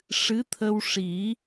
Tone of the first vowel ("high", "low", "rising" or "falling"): rising